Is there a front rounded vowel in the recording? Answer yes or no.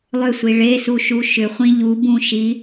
yes